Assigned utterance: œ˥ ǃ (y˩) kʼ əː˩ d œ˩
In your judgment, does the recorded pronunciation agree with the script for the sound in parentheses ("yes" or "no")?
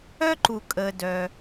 no